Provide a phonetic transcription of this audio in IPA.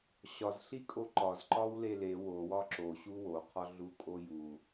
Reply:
ɕ ɒ z ɬ i kʼ o ǃ ɒ z ǃ ɒ w l e l e w o w ɒ ǁ o ɕ u w o qʰ ɒ ɮ u kʼ o j u

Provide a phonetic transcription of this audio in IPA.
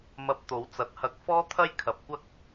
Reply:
m ɐ˧ p̚ t̪ o˨˥ w t͡s ɐ˨˥ t̚ h ɐ˧ k̚ f ɔː˥ t̪ʰ ɐ˥ j kʰ ɐ˨ p̚ kʷ ɐ˥ k̚

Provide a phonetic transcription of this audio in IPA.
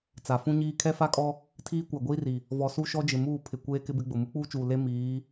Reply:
t͡s a˨ f ũ˦ ɲ iː˦ kʰ ɛ˦ f a˦ kʼ ɔ˦ | tʰ iː˦ kʷ a˨ ɡʷ iː˦ r i˨ | v ɔ˨ s u˦ ʃ ɔ˦ d͡ʒ ɪ˨ m uː˦˨ pʰ ɪ˨ kʷ eː˦ k ɪ˦ b ɪ˦ ɡ͡b ʊ˨ m u˦ k͡p uː˦ t͡ʃ uː˨ l e˦ m iː˨˦

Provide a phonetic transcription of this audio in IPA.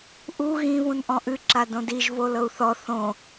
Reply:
ʔ u ɣ ĩ β ũ n ʔ ɔ̃ ʔ ɨ ǁ a d õ d i ʒ v o l ɤ u̯ θ ɔ θ õ

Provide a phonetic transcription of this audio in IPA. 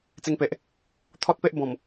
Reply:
t͡s e˧ ŋ p e˨ ʔ | t̪ʰ ɔ˦ t̚ p e˦ ʔ b ɔ̃˨˩ m

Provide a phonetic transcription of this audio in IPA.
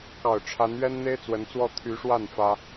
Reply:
k ɑ˨˩ ʊ̯ ʈ͡ʂʰ a˧˥ n ɥ ɛ˥ n n̪ e˥ ɪ̯ t͡s w ə˧˥ n t͡s w ɔ˥˩ t̪ʰ y˧˥ ʂ w a˥˩ n f ä˥

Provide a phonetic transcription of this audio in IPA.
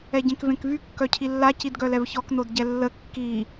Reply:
ɛ ɟ ẽ k v ẽ k v y kː œ cʰ i lː a c i d ɡ œ l ɛ v ç ɔ k n o d ɟ ɛ lː ə kː i

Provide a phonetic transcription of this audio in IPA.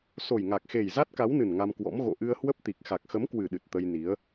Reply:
s o˨˩ j ŋ a˨˩ k̚ x e˨˩ j z a˦˥ t̚ k a˨˦ w n ɨ˨˩ n ŋ a˧ m k w ɔ̰˧˥ m ɣ o̰˧˨ ʔ ɨ˧ ə̯ h w ə˦˥ p̚ t̪ i˨˩ k̚ x a˨˩ k̚ x ə˨˦ m k w ɨ˨˩ ɗ ɨ˨˩ t̚ t̪ ə˧ j n i˨˦ ə̯

